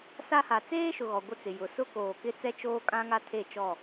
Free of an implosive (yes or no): yes